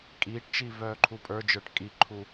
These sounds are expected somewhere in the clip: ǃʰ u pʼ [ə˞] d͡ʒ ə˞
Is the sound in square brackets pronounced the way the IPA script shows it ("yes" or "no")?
yes